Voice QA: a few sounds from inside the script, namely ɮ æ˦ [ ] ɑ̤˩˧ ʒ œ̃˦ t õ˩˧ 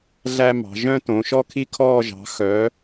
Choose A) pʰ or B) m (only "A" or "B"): B